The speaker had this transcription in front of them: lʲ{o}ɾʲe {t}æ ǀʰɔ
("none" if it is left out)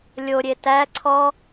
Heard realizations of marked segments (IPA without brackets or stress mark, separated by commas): o, t